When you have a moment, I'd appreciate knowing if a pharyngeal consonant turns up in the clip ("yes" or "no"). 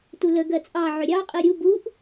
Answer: yes